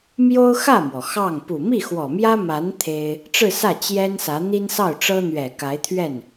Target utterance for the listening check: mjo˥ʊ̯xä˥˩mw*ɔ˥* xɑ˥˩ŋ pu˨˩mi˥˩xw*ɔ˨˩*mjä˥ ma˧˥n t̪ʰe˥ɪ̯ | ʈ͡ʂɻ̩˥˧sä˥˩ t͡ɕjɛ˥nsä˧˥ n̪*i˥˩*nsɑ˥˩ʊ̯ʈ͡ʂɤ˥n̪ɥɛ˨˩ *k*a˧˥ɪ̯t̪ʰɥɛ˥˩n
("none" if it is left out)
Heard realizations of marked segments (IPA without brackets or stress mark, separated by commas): ɔ˩, ɔ˨˩, i˥, k